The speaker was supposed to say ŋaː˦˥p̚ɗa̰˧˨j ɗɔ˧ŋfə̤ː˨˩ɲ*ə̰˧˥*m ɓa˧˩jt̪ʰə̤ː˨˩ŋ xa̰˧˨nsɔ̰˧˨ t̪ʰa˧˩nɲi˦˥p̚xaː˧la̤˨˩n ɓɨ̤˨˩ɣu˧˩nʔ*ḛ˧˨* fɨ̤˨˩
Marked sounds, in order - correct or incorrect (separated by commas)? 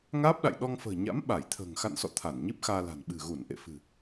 incorrect, correct